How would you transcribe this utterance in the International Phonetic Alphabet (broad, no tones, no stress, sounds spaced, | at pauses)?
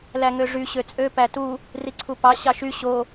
l æ ŋ ø ʐ y ɕ ø t͡sʼ ø p æ t u | r i ǀʰ u p ɑ ɕ ɑ ʃ y ɕ o